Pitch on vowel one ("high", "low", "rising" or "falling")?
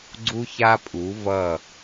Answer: high